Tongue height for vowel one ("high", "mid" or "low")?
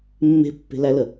mid